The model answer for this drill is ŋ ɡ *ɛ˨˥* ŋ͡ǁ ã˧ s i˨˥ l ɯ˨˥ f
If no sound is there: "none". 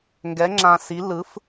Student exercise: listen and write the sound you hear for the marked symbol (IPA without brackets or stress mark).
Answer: ɛ˨˥